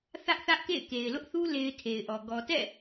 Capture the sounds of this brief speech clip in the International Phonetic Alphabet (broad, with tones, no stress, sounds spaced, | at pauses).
θ ä˦ ʔ θ ä˦ ʔ k ḛ˦˨ ɪ̯ k e˨ ɪ̯ l ʊ˦ ʔ θ u˦ l e˦ ɪ̯ tʰ e˨ ɪ̯ ʔ ɔ˨ ɡ ɔ˨ t ɛ̰˦˨